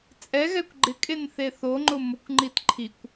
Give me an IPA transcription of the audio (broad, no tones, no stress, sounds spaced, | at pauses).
t͡sʼ ɛ ɣ ɛ kʷ ɡ͡ǃ ɪ kʼ e n θ e θ o ŋ͡ǃ ʊ m ʊ kʷ ŋ͡ǃ i t ǃʰ i kʷ